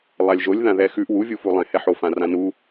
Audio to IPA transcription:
lˠalʲʒolʲ ðãðɛxʉʔ wuvʲufu lˠɛ̃hɛħofã rãnu

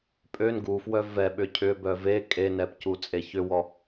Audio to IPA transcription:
pʼøn ɡufwœ vɛ ɓʏcʰʏbœ ve kʼenɛp cut͡sʼeçʏwɔ

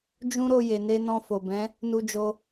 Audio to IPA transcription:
d͡ʒũ˦ɾo˧ je˨ne˧ nɔ̃˧fo˨bɛ̃˨˦ | nu˧d͡ʒo˧

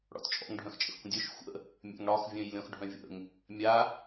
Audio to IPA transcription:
ɽɔ̰tt͡ʃʼɔ̰ŋɖʱœ̃x t͡ʃʼə̰xkʷə̃dʲœʃ xʷə̰ | mʲa̰ŋɽɒx vʲœ̃jlʲɔ̃xɖʱœ̃vʲə̰ŋ | mʲa

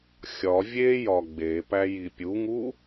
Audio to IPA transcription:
xʲɒ vʲejɒ ɡ͡bepæji pʲuŋu

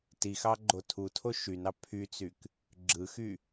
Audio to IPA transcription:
tixɑɡ͡ǃo tʰutʰo ʃynɑ pʰyt͡syk | ɡ͡ǁɯxy

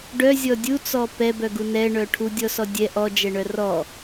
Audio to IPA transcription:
ɖœzʲɔ dʲut͡sɔ pɛbœɡu nɛɳœ ʈʰudʲɔsɔ dʲɛ ʔɔd͡ʒɛɳœ rɔ

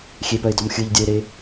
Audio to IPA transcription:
xʲepœɪ̯dɔm xʲɯʎdʲœɪ̯ɾe

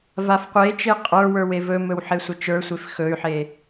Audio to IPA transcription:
vafqʷet͡ʃe qʼə˞wə˞w evɵmɵw ħesʷət͡ʃə˞sʷef xɵy̯ħe

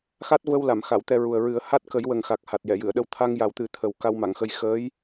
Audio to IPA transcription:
xa˦˥t̚və˧w la˨˩˨mxa˨˩˨w t̪ɛ˧ɹu˨˩ə̯ɹɨ˨˩˦ə̯ ha˦˥t̚kə˨˩˦j wə˨˩ŋxa˨˩k̚ ha˨˩t̚jɛ˨˩˨jɨ˨˩˨ə̯ɗə˧w t̪ʰa˧ŋja˨˩wt̪ɨ˨˩˦ t̪ʰə˨˩w ka˧wma˨˩˨ŋxə˧j xəː˧˥j

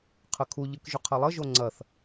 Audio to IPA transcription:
qʰəkʰu ʎɯkʒʏqʰɐlˠə ʒoŋ͡ǀɐθ

